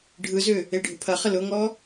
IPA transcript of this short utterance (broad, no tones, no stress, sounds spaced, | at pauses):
ɖʱ ɯ z ʏ | e ɖʱ ʊ pʰ ɐ χ ə l ʊ ŋ ɔ